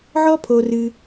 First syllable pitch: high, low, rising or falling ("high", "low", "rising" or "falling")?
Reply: high